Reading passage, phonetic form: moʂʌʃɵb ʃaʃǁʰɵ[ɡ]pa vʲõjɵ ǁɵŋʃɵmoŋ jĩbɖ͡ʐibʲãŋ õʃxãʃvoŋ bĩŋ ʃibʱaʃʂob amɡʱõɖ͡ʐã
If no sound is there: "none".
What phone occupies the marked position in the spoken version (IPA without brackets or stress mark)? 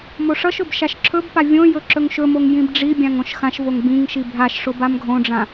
b